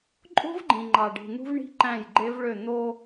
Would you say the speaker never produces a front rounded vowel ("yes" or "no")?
no